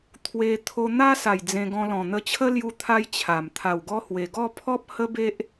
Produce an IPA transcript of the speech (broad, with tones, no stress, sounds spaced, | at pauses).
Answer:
t̪ʰ w e˧ t̪ʰ o˧ n̪ a˦ s a˨˩ j d͡z ẽ˧ ɡ ɔ̃˧ l ɔ̃˨˩ n̪ ə˧ t͡ɕʰ ə˦ l j u˧ t̪ʰ a˧ j t͡ɕʰ a˨˩ m t̪ʰ a˨˩ w ɡ ɔ˧ h w e˨˩ ɡ ɔ˥˧ pʰ ɔ˦ p̚ h ə˦ b e˦ ʔ